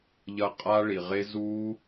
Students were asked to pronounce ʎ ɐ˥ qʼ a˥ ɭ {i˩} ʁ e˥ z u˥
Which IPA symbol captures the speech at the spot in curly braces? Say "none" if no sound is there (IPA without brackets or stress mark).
i˩